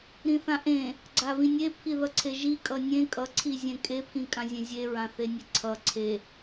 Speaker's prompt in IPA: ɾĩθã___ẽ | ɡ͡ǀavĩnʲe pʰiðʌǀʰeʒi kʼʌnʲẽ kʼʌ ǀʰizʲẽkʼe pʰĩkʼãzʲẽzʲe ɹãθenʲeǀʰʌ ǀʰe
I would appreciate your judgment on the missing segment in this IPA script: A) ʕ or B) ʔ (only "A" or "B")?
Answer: B